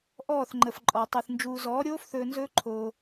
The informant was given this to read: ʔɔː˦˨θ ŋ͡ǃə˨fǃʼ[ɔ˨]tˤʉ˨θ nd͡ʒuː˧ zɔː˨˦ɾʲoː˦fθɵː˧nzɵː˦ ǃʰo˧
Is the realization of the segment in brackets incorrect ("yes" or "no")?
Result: no